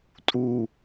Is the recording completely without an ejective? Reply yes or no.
no